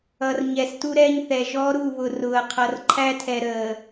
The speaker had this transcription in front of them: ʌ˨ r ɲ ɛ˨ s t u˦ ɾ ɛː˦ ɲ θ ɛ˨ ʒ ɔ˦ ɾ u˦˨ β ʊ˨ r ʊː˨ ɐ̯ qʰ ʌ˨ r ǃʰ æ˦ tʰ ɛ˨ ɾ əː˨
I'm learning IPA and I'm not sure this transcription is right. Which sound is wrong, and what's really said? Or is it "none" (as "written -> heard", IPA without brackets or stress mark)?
none